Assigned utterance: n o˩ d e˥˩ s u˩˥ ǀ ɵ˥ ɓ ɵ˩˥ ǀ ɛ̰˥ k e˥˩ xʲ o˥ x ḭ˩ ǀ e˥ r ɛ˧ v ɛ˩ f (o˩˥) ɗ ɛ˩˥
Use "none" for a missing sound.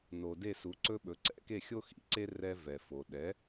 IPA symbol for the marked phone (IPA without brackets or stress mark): o˩